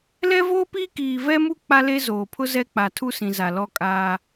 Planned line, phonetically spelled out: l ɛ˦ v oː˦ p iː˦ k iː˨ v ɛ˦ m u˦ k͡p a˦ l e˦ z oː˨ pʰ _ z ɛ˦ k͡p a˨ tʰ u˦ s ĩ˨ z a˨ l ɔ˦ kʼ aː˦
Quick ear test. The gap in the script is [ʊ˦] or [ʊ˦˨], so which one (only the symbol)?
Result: ʊ˦